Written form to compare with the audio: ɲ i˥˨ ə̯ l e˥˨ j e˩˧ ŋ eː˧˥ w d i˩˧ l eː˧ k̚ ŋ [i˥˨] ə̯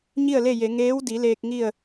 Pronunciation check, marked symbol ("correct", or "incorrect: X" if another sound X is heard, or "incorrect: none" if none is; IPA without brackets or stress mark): correct